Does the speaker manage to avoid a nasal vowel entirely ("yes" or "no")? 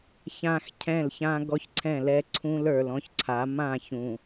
no